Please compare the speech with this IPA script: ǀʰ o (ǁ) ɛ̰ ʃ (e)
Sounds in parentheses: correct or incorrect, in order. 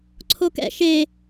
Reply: incorrect: k, correct

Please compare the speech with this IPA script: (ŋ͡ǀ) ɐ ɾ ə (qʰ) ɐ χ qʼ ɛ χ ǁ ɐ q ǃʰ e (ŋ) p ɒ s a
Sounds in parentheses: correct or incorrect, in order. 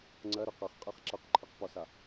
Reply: correct, incorrect: q, incorrect: q

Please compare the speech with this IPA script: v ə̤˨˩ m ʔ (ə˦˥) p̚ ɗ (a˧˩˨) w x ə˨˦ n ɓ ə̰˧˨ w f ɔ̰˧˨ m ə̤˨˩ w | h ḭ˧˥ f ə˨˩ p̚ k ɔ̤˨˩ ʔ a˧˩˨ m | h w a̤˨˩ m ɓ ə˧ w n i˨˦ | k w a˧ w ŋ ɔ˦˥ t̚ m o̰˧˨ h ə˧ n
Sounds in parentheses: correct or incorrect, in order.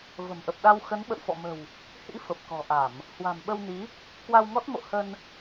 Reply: incorrect: ə˨˩, incorrect: a˧

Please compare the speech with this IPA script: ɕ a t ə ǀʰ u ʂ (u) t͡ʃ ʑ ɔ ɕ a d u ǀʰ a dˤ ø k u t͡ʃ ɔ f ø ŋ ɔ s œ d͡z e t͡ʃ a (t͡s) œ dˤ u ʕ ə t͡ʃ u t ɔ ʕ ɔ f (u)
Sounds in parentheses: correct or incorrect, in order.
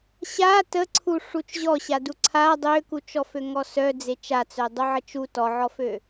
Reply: correct, correct, incorrect: ø

